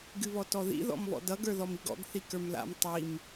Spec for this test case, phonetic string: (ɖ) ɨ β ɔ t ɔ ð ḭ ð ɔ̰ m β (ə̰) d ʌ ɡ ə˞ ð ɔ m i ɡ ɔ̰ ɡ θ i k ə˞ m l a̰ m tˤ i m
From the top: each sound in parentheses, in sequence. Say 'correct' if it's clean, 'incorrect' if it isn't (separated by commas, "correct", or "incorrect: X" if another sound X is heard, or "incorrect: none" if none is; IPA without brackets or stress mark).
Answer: incorrect: ɡ, incorrect: ɔ̰